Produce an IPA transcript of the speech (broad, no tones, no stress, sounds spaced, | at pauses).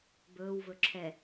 b ɵː w v ɵ ǁʰ ɛ